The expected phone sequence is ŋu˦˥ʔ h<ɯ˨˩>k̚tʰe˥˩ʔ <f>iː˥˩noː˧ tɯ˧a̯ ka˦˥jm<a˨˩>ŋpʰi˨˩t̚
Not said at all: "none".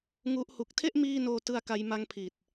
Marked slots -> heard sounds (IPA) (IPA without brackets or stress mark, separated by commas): u˨˩, m, a˦˥